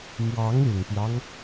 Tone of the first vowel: rising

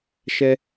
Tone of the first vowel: high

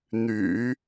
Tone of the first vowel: low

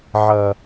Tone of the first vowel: low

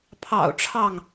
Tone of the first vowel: low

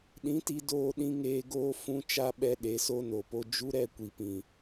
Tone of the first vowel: rising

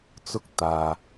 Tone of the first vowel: high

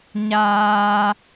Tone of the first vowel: high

